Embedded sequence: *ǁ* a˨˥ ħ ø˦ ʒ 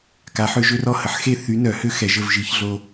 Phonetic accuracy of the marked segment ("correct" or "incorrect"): incorrect